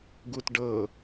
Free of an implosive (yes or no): yes